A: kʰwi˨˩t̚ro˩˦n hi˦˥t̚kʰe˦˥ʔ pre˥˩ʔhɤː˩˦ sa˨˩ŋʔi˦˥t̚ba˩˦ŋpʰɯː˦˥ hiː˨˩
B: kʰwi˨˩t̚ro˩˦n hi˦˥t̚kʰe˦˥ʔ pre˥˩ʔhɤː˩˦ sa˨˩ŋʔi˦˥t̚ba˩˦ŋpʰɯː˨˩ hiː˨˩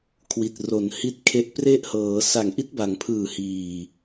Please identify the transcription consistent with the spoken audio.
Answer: B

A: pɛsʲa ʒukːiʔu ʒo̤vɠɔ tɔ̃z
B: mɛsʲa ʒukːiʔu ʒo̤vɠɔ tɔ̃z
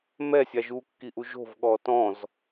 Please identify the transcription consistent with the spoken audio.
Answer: B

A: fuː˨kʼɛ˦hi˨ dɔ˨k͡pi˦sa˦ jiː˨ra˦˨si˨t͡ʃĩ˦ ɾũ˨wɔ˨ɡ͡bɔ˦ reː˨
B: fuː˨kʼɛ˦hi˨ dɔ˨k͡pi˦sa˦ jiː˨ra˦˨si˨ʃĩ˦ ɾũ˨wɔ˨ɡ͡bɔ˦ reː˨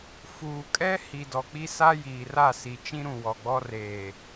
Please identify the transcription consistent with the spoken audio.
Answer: A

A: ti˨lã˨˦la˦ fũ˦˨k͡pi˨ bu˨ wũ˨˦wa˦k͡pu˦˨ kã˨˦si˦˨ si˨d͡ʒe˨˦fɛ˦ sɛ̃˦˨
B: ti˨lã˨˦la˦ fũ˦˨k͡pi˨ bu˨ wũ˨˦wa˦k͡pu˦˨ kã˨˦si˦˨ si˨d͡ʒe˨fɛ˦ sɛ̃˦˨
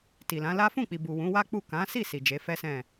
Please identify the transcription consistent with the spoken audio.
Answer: A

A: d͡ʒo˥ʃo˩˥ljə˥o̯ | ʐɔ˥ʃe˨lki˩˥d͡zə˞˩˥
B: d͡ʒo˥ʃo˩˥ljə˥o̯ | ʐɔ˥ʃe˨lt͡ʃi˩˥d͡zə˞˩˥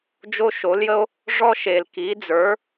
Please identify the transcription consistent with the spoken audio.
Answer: A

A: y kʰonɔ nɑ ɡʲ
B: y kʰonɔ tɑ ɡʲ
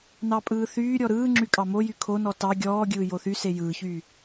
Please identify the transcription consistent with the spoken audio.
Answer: B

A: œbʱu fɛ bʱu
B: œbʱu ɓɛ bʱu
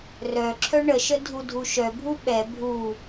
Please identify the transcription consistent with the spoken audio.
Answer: B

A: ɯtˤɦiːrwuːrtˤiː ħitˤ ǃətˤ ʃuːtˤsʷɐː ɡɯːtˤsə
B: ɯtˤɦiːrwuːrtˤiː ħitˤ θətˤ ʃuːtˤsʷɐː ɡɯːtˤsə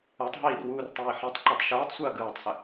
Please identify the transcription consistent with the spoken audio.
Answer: A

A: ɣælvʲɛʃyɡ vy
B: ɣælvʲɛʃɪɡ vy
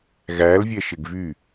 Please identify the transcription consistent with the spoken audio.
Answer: B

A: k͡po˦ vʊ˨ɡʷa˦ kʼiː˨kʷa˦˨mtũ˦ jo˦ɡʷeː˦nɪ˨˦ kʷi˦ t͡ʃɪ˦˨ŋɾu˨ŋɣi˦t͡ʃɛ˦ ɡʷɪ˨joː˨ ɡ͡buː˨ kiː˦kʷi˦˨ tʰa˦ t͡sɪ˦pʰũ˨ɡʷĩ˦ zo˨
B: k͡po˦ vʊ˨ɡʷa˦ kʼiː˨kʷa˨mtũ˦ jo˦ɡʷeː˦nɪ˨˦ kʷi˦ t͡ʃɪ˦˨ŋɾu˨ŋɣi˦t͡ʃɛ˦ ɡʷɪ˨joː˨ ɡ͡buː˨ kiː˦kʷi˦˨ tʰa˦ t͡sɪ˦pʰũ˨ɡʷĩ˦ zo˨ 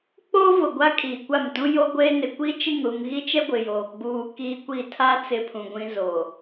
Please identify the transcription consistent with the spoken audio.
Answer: A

